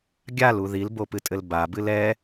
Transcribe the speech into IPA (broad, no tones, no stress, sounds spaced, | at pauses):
ɡʲ a l u ð i l b o p ɨ tʼ ɘ l b a b ɨ l ɛ